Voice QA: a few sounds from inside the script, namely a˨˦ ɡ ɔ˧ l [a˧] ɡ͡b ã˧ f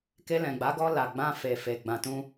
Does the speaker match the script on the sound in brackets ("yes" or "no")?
no